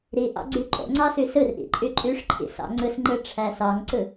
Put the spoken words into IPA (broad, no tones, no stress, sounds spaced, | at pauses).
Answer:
ɾ i ʔ ɑ̰ ɡ͡ǀ y ǃʼ o̰ ŋ͡ǀ ɑ s y s ɯ r ʔ ḭ ǃʼ y ǃʼ y ʂ ǃʰ ḭ s ɑ̰ ŋ͡ǀ ɯ s ŋ͡ǃ ɯ ʈ͡ʂʰ æ s ɑ ŋ ǀ ɯ